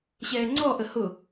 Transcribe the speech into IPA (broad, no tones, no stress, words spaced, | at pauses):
ɕɛːŋ͡ǀɔʔə hʊ